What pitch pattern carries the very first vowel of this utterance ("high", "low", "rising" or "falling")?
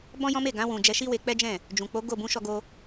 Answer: high